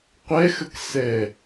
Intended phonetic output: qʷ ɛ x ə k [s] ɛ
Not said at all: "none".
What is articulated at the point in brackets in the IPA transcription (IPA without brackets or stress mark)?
s